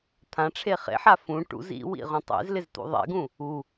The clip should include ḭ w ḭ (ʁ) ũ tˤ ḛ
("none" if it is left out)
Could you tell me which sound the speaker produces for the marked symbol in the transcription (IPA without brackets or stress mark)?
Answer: ʁ